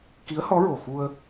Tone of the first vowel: rising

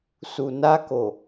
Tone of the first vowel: low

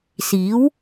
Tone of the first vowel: rising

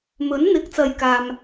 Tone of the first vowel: rising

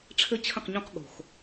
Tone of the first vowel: high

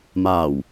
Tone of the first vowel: low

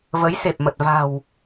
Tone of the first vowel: rising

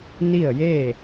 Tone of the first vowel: falling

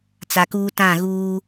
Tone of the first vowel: low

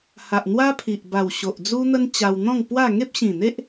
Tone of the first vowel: low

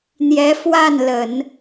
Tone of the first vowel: rising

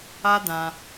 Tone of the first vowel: high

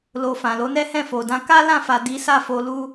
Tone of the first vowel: low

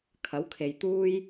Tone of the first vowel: rising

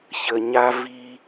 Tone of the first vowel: low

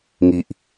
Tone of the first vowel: low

